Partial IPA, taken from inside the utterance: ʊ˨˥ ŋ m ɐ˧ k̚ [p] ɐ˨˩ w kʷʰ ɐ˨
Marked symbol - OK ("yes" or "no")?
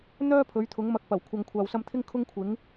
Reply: yes